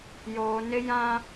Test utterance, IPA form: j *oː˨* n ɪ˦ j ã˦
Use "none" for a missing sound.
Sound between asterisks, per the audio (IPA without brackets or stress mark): oː˨